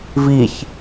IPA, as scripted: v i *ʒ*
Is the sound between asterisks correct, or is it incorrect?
incorrect